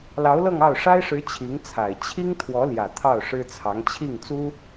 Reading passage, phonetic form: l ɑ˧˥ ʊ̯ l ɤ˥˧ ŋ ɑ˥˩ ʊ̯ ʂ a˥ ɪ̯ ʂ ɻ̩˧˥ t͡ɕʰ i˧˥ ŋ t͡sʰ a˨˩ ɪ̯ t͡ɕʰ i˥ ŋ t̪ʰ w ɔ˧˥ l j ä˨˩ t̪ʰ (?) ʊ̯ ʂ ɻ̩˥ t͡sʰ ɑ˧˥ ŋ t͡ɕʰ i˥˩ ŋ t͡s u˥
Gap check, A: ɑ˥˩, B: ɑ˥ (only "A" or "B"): A